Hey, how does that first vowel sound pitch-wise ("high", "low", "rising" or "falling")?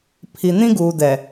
low